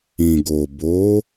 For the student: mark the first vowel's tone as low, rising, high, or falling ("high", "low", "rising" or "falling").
low